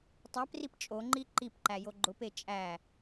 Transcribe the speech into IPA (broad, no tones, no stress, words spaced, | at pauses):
tˤæprip t͡ʃʼoŋ͡ǃi ǃipǃæ joɡ͡ǃʊpe t͡ʃʼæ